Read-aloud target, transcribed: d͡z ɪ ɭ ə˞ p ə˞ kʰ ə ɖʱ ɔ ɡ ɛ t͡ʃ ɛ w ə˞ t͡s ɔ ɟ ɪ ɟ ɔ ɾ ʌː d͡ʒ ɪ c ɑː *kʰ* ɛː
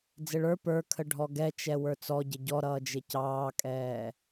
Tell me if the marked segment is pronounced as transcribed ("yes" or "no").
no